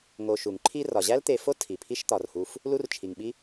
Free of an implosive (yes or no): no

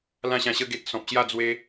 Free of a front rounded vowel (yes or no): yes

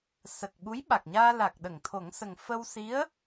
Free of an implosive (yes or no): no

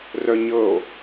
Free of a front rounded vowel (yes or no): no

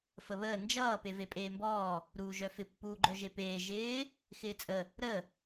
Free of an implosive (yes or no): yes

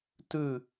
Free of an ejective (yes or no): yes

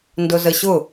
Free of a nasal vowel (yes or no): yes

